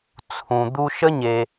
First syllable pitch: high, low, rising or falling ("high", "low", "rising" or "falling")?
low